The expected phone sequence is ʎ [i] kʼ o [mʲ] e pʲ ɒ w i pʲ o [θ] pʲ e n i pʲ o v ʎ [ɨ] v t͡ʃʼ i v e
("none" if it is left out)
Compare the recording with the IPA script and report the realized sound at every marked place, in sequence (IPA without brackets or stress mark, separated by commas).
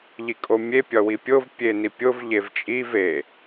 i, mʲ, v, e